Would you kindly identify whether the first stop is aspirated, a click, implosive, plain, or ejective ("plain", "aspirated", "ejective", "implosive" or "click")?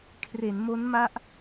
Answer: aspirated